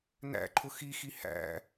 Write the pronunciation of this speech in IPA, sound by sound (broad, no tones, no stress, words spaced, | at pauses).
næ̰ǃʰʊ xixi hæ̰